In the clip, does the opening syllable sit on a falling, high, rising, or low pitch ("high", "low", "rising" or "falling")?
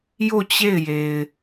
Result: falling